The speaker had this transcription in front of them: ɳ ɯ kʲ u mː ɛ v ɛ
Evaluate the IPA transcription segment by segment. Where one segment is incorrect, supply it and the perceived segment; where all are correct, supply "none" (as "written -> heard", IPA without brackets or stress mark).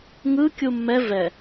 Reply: ɳ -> ŋ